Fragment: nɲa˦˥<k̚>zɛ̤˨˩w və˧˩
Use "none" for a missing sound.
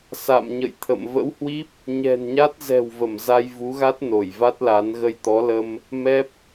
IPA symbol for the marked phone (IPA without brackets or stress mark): t̚